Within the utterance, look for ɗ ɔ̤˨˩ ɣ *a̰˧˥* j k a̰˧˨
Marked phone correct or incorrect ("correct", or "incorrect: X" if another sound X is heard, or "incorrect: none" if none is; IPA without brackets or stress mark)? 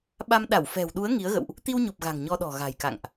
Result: incorrect: a̤˨˩